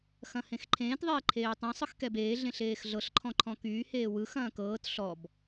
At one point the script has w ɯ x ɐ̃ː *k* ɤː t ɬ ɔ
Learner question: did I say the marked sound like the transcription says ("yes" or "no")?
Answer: yes